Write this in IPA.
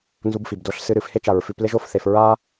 n z u˧ b f i˩ b d o˧ ɬ s ɨ˧ ɾ ɨ˩ f h e˥ t͡ʃ a˩ ɹ f ʉ˧ p l e˥ ʒ o˧ f θ e˩ f ɹ a˥

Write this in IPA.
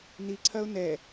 n i ǀʰ ɐ ʊ̯ n ɛ

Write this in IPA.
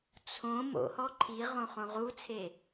t͡sʰ õ m o̰ h ɔ ǃʰ i ʁ õ χ õ ʁ u t͡sʰ e

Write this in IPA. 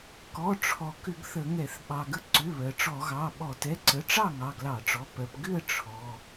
k ɔ˩˧˩ ʈ͡ʂʰ ɔ˩ k ʏ˧˩˧ ɡ θ ə˧˩˧ ŋ ɛ˧˩˧ θ ɓ ɑ˩ ɡ ə˧˥ ǀ ʏ˩˧˩ β ɜ˩ ʈ͡ʂ ɔ˧˩˧ ɣ ɑ˩˧˩ ɓ ɔ˧˩˧ t ɛ˩˧˩ ǀ ə˩˧˩ ʈ͡ʂ ɑ˥˨ ŋ ɑ˩˧˩ ɡ l ɑ˧˩˧ ʈ͡ʂ ɔ˩˧˩ p ɜ˩ p ɡ ʏ˥˨ ə̯ ʈ͡ʂʰ ɔ˩˧˩

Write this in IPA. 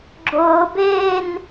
ɡ͡ǁ ʊː b eː n

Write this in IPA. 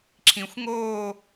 ǁʰ ĩ xʷ ŋ oː

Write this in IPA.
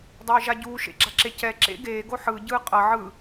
dˤ eː ʒ a ɟ uː ʃ ḛ ɡ͡ǁ a ǁ e c ɛ ǁ ḛ ɡ eː ɡ o ħ ɯ ɟ ɯː qʼ ʌ ʕ ɯ

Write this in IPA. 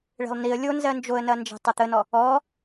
ɭ e̤ lˠ n i ə̯ lʲ o n z ɜ n d͡ʒ o ə̯ n ɐ n d͡ʒ e̤ tˤ ɐ t̪ ə n ɔ | ɔ

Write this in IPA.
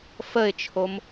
f ə ɪ̯ t͡ʃʰ o m

